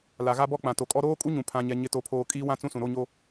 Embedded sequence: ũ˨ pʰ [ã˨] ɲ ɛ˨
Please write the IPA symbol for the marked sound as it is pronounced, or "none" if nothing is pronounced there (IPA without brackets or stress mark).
ã˨